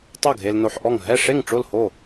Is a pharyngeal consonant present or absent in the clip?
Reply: present